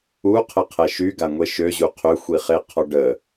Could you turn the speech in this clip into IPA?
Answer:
u qʰ ə qʰ ɛ ʃ y ɡ a ŋʷ e ʃ ø ʑ u qʰ ø xʷ i χ e qʰ ɔ ɖ ə

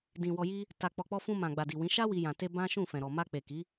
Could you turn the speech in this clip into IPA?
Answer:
d ĩ˨ w ɔ˧ j i˦ | t a˨ k͡p ɔ˨ k͡p ɔ˧ f ũ˧ m ã˨ ɡ͡b a˨ d i˨ w ĩ˨˦ ʃ a˦ w i˧ j ã˨ t e˧ b ã˦ ʃ ũ˦˨ f ɛ̃˨ ɾ ɔ˨ m a˧ k͡p e˨ k i˨˦

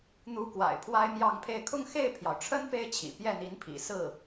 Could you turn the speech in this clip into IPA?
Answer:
n̪ u˧˥ k w a̰˨˩ ɪ̯ pʰ w a˥ ɪ̯ m j ɑ˥˧ ŋ pʰ e˥˧ ɪ̯ kʰ ʊ˥˧ ŋ x e˥˩ ɪ̯ pʰ j ɑ˩ ʊ̯ ʈ͡ʂʰ ə˥ n p e˥ ɪ̯ t͡ɕʰ ḭ˨˩ p j ɛ˥˩ n̪ i˧˥ n pʰ ḭ˨˩ s ɹ̩˥˩

